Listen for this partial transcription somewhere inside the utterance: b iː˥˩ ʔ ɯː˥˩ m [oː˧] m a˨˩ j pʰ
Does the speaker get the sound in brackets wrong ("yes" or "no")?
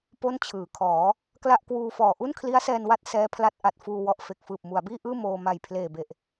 no